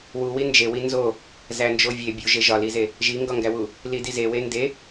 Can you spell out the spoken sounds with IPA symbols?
wuwi nd͡ʒewi nzo | zænd͡ʒovʲe bʲuʒe ʒɒlize | ʒiŋɡɒŋɡæwu | lidize wende

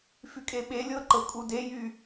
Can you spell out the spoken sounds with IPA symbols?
fykʼeɓelʲɤ ǃɤkʼudejy

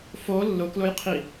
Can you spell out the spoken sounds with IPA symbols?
fo lːʊklʊjqʰi

